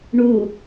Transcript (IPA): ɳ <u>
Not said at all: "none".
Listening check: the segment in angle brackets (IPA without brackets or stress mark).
u